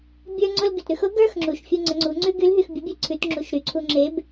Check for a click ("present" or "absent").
present